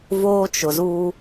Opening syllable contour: high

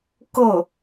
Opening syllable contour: falling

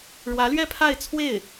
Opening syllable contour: rising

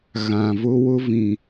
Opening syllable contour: low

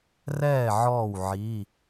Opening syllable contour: falling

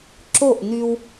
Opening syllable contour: falling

